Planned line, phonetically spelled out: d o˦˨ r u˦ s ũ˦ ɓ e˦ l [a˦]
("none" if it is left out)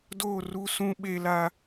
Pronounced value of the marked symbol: a˦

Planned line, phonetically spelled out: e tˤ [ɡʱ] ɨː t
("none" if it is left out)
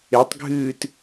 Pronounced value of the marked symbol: ɡʱ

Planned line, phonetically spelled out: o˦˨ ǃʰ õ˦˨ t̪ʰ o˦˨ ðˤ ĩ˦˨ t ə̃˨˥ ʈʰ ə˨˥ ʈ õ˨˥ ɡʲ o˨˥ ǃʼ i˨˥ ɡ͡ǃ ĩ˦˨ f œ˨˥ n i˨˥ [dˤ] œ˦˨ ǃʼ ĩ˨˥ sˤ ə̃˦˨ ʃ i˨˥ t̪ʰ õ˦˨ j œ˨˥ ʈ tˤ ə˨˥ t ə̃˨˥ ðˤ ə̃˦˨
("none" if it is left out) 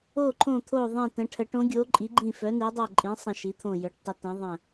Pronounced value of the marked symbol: dˤ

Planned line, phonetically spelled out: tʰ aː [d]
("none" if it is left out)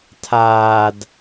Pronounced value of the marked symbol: d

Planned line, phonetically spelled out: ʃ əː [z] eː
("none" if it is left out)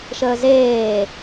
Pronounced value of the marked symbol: z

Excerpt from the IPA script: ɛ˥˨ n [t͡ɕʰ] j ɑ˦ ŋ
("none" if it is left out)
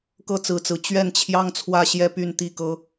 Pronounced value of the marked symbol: t͡ɕʰ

